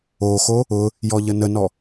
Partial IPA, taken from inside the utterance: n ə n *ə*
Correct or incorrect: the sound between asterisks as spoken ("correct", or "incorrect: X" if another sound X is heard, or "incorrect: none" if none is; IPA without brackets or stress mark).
incorrect: ɔ